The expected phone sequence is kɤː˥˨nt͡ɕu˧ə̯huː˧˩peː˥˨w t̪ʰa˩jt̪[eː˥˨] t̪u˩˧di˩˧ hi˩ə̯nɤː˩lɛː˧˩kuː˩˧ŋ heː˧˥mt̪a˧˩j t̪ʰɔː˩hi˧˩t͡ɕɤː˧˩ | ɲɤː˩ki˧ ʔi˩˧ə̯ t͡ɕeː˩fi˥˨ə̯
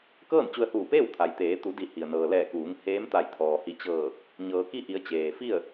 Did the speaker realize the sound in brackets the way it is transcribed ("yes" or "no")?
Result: no